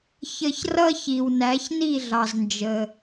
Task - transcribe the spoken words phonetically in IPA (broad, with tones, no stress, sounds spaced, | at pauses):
ç ə˧ ç r ʌ˥ ç i˩ w n æ˩˥ ç n i˥˩ ɮ ɑ˩ z n d͡ʒ ə˩